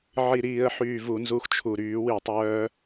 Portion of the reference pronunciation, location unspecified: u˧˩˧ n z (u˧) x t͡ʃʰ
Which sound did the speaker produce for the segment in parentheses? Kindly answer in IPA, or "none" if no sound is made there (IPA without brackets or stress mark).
u˧